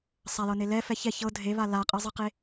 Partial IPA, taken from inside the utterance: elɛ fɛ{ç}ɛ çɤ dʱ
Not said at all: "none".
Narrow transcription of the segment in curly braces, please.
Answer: ç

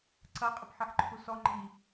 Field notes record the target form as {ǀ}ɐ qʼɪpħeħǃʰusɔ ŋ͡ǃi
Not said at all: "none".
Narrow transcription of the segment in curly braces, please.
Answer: ǀ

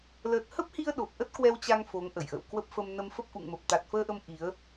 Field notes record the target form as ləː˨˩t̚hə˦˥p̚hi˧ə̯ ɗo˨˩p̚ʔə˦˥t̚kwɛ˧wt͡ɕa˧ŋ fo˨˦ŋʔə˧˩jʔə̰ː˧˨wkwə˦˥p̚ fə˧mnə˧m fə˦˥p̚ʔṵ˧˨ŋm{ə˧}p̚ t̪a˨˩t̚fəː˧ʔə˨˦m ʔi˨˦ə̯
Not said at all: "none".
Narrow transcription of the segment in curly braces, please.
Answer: ə˨˩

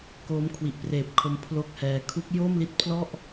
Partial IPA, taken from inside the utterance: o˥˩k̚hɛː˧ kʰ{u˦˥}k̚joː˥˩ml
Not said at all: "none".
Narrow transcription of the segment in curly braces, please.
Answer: u˦˥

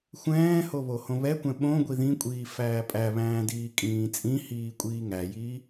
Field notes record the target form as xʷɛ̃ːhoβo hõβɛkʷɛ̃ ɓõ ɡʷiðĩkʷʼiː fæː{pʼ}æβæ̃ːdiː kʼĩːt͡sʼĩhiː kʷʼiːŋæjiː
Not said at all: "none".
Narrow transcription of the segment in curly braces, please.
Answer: pʼ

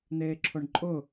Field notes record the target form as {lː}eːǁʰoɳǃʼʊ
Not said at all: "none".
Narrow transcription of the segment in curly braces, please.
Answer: n̪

